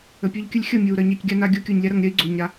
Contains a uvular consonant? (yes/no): no